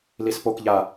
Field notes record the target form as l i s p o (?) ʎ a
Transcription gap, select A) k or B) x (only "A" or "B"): A